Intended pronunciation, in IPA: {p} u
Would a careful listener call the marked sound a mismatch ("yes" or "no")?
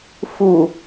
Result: yes